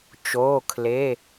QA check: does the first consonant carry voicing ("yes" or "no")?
no